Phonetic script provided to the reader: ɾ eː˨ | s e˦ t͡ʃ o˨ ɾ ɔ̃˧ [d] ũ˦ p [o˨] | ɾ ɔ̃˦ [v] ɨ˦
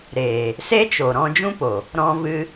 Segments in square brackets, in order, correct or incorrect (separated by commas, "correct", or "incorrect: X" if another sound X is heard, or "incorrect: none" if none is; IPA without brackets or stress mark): incorrect: d͡ʒ, correct, correct